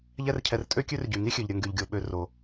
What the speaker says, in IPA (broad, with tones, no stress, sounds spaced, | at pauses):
ʎ ɛ˦ r cʰ ɛ˨ r tʼ ø˥ kʲ ø˥ r ɟ y˩ ŋ i˥ xʲ ø˩ ʎ ɾʲ ə˨ ŋ ɡ y˩ ʎ ɡʲ o˩ ɓ ø˨ r o˩